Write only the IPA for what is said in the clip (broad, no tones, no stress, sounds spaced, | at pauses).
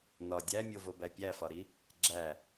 n ɒ dʲ æ mʲ o v o b æ pʲ æ f ɒ ɾ i | ɡ͡ǁ æ